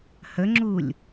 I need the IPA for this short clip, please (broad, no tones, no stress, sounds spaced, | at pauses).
h ə ŋ͡ǁ u lʲ